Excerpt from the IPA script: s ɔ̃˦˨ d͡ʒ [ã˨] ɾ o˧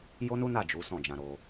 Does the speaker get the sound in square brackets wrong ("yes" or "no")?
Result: yes